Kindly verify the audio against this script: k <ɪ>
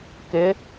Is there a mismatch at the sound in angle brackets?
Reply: no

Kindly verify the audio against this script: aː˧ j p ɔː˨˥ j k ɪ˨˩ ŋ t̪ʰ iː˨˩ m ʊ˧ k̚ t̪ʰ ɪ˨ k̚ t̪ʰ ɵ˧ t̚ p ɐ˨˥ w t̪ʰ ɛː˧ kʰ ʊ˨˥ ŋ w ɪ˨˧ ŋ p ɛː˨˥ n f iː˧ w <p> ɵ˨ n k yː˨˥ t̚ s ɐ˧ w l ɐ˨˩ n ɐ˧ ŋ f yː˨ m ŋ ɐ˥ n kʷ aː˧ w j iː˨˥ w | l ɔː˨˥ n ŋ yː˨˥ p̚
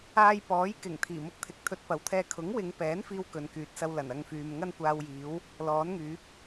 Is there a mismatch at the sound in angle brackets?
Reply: yes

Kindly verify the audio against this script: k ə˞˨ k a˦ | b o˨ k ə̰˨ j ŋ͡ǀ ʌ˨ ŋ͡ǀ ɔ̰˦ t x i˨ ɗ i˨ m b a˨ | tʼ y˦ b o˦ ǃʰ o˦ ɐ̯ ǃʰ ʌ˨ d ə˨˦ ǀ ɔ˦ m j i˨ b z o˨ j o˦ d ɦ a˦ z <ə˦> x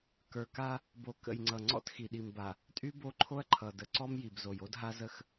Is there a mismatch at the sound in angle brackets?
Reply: no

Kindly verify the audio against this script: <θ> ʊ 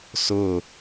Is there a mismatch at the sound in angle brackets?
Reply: yes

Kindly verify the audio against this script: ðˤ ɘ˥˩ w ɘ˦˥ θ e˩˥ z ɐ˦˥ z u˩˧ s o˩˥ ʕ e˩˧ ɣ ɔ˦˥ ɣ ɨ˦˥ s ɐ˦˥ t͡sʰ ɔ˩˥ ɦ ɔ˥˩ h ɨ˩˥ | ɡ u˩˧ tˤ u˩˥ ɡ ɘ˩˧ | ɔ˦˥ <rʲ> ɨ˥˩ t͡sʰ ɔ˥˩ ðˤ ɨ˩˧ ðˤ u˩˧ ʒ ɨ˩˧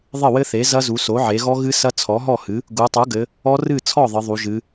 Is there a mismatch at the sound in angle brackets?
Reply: yes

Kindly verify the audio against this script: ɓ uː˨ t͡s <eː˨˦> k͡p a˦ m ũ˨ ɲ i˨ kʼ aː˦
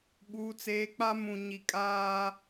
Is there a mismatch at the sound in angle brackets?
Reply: no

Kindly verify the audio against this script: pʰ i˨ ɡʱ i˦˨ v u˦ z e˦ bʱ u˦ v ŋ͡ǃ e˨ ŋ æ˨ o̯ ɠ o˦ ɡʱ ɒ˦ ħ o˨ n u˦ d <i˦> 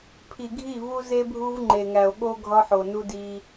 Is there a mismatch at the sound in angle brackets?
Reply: no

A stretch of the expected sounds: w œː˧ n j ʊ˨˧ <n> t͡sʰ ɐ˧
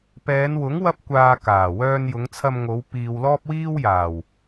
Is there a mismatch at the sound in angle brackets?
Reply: yes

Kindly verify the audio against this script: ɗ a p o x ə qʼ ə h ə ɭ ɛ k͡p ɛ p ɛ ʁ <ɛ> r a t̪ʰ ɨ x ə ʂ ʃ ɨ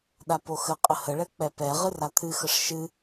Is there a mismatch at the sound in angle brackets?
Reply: yes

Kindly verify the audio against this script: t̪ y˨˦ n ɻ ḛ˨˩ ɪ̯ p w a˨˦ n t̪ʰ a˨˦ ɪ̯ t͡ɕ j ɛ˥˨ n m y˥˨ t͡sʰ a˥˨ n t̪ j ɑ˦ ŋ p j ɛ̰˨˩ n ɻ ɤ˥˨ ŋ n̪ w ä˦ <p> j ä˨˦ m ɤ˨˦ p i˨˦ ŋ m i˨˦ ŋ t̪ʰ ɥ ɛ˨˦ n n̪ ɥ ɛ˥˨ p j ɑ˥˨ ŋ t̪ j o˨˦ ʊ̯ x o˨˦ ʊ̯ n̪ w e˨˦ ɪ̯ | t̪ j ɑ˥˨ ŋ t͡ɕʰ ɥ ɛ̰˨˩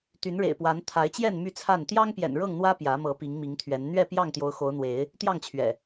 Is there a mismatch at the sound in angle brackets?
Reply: no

